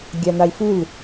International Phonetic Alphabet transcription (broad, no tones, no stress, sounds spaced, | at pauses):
ɡʲ ɑ n̪ ɑ i̯ f u l